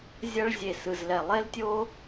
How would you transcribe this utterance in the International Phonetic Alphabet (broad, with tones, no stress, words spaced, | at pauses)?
zʲʌ˦ɭ zʲe˧sɯ˧zlɛ˧ lˠe˦ltʲo˦